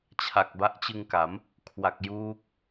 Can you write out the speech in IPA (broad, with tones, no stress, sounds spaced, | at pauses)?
t͡ɕʰ a˨˩ k̚ b a˦˥ ʔ t͡ɕ ɯ˧ ŋ k a˩˦ m | kʰ w a˨˩ k̚ j uː˦˥ k̚